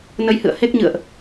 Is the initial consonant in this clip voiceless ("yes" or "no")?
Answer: no